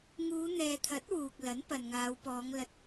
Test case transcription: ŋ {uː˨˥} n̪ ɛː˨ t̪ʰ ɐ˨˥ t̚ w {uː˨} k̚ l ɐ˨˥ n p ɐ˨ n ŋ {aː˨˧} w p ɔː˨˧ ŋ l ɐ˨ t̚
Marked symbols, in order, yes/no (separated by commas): no, yes, yes